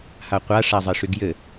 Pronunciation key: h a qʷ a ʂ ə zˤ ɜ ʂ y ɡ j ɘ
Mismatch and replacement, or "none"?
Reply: ə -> a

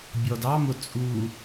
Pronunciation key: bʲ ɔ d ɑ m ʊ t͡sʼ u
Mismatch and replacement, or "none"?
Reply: none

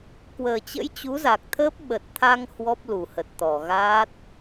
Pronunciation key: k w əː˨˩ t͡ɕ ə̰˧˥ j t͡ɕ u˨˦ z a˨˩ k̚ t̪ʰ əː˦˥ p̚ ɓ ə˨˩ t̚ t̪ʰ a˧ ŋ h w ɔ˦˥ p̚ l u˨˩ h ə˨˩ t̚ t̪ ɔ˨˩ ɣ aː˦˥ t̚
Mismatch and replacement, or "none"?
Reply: none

